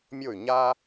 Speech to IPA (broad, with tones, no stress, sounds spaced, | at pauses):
mʲ o˥˩ y̯ ɲ a˥